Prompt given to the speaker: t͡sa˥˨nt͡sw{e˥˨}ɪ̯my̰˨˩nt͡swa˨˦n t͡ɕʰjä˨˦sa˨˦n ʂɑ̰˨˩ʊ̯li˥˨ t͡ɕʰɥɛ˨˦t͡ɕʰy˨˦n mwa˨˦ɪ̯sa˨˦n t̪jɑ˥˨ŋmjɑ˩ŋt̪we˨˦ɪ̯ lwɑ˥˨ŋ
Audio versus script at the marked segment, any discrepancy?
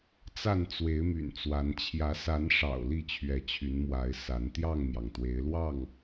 yes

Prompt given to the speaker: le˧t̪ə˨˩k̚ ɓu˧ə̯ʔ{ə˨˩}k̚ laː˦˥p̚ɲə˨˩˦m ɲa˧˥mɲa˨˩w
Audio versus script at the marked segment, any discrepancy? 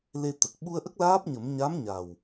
yes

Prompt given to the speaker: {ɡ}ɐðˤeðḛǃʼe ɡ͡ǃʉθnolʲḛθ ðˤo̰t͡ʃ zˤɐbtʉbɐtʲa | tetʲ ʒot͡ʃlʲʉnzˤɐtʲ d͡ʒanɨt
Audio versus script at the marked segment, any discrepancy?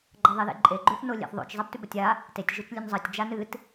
yes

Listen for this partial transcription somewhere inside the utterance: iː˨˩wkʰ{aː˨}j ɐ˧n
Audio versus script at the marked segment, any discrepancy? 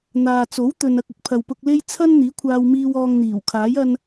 yes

